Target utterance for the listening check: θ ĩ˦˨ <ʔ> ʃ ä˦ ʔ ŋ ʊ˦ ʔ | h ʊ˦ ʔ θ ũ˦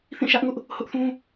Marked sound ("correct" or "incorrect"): incorrect